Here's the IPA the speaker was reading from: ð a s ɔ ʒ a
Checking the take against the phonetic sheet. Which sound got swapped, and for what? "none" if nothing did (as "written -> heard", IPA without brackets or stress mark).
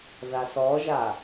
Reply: none